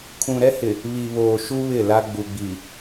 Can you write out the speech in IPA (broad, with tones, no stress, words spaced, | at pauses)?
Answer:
kʰũ˨ɾɛ˦hɪ˨ | βi˨βoː˨ʃu˦ βɪ˦˨la˦ ɡ͡bu˨ɡ͡bi˨